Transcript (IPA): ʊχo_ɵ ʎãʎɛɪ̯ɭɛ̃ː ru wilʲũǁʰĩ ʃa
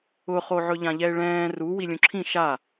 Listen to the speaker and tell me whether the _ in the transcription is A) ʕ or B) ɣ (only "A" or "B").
A